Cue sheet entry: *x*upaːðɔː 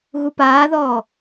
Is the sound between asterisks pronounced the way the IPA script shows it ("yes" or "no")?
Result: no